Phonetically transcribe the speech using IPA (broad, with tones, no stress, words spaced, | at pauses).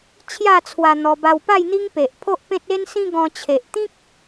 t͡ɕʰja˥˧t͡sʰwa˧ n̪ɔ˧ba˧wpa˥˧j n̪i˦ŋpe˨ʔ pʰo˦ʔpẽ˦t̚ e˦nsĩ˦ ɡɔ̃˧t͡ɕʰe˨ʔt̪ĩ˦k̚